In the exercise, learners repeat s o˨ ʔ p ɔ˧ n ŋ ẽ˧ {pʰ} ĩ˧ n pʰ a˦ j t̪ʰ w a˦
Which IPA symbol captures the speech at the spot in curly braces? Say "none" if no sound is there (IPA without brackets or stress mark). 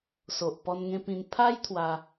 p